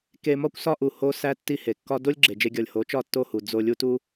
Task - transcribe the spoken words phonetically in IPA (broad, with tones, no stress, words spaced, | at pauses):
ke˧mɒ˦kʷ sɒ˦ʔu˨ ho˦sæ˦ tːi˦he˨ kːɒ˦ do˦lʲɡ͡ǁe˨d͡ʒe˧ɡʲɒ˨lʲ ho˨˦t͡ʃɒ˦˨tːo˦˨hu˨ d͡zo˧ lʲu˦tu˦